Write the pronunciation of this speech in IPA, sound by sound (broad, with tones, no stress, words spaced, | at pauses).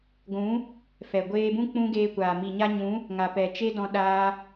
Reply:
ɡʷũ˨˦ | fɛ˨ɡʷeː˧bũ˦ k͡pũ˦ɡeː˧kʷaː˨ mi˨ɲa˧ɲũ˨˦ | ŋa˨ pɛ˨t͡ʃe˦dɔ̃˧ ɗaː˧